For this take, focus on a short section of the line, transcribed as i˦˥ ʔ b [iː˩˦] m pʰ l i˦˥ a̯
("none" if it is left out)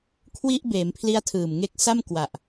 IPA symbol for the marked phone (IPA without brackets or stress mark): eː˩˦